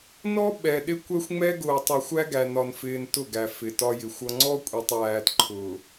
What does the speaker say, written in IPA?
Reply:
nɔ˦ ɓɛ˨ɗɪ˦ kʷɛ˦xʷŋ͡mɛ˦ ɡʊː˨tˤʌ˨ xʷæ˦ɡæ˨ nɒ˨nfɪː˨n tʊ˦˨ɡæ˨ fɪ˨tɒ˦jɪ˨˦xʷʌ˦ ŋ͡ǀɔ˦kʷʼɛ˨tˤjæː˨t ǃʰʊː˨

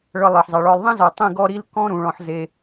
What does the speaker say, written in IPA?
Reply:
ɭɤ˧lˠɤ˨ħzˤɛ˨ɭɔ˧lˠ ðˤĩ˦zɔ˨ tˤĩ˧ɡɔ˧ ɾi˦l kɔ̃˦ ɾũ˨ɭɔ̃˧ħ ze˧

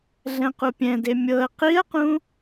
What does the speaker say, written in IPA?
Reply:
ɮɛ̃qupʲɛ̃de mʲɤə̯ qiə̯qũ

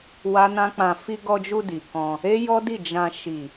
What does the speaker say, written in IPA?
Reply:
wa˦nã˦k͡pã˧ fi˧ɡɔ˧d͡ʒu˧ di˨kɔ̃˧ | e˦jɔ˦di˦˨ d͡ʒã˧ ʃi˨

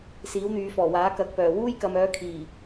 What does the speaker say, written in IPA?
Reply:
siː˨˥wn̪yː˨˧fɔː˨˩waː˨˥ kɐ˨˥k̚pœː˨˩ wuː˥jkɐ˨˧mœː˨˥ kʰiː˨˩

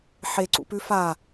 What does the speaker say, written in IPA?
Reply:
ħeǀṵpʉ fa

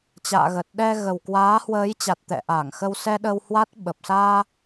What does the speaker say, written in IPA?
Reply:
t͡ɕa̰ː˧˨ɣəː˨˩t̚ɗɛ˧ ɣə˨˩wkwaː˨˦hwəː˨˦jt͡ɕa˨˩t̚ t̪ɛ̰˧˨ʔaː˧˩ŋxə˧wsɛ˧ ɗə˧whwa˦˥t̚ ɓə˨˩p̚saː˧

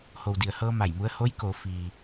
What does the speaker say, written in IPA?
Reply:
ho˩wdi˩ə̯hɤː˧ ma˧˩jmu˧˥ə̯ ho˧˥jko˩˧ fiː˩

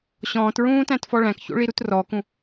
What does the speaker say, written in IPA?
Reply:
ɕɔ̃ːtɹũːtæ̃tfɔ ɭæ̃kço̰ɭiɾut rɔkũ

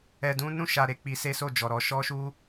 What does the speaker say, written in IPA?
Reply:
ɛ˧dũ˦ nũ˦˨ʃa˨ ɾe˨˦k͡pi˧se˦so˦˨ d͡ʒɔ˨ɾɔ˧ ʃɔ˦ʃu˦

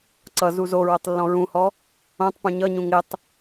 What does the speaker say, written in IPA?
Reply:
ǀʌ zuzoɹotˤ lːɔ̃ɹũhɔ | õtˤ pũɲʌɲũ ŋɪtˤ

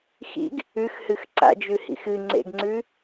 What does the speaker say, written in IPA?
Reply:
xḭɡ | ʉxhɨx ǀa̰d͡ʒʉhḭx ɨŋ͡ǀḛɡŋ͡ǀʉ

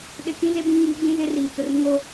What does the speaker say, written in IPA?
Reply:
ɗɪ˨ kĩ˦ze˦ bĩ˦ŋiː˨˦ ɡ͡bĩ˦zɪ˦riː˨t͡sʊ˨r ŋo˦

